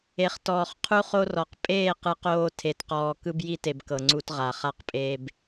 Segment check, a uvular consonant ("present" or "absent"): present